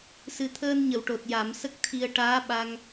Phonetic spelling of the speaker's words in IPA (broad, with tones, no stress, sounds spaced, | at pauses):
s ɨ˨˩ t̪ʰ əː˧ n ɲ ə˨˩˨ w ʈ o˨˩ t̚ j a˨˩˦ m s ə˦˥ k̚ t̪ʰ i˧ ə̯ ʈ aː˧˥ ɓ a˧ ŋ